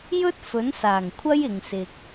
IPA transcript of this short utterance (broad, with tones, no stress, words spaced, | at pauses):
jɵ˥t̚fɵ˨˥nsaː˨˩ŋ kʷʰɐ˥jɪ˨ŋ sɪ˧k̚